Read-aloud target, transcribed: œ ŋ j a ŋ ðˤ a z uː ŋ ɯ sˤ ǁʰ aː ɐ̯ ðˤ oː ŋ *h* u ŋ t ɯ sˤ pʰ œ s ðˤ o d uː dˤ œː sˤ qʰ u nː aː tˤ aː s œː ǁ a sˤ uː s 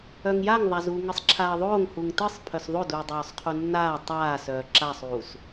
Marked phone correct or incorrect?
correct